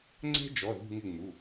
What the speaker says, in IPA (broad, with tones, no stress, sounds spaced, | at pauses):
ŋ͡ǀ ɛ̤˦˥ d͡ʒ ɔ˩˧˩ ð ṳ˦˨ ŋ ɪ˦˨ ŋ͡m u˩˧˩